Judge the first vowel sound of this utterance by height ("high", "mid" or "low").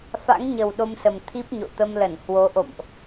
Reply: low